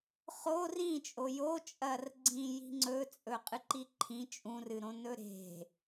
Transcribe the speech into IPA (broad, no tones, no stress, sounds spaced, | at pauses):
χ o r ĩ t͡ʃʼ o j o t͡ʃʼ ɐ r ɡ͡ǀ ĩ j i̤ ŋ͡ǀ ɵ t͡sʼ ɵ qʼ ɨ ǃ i ǃʰ ĩ t͡ʃʼ ũ r ɨ ɾ õ n ɵ ɾ e̤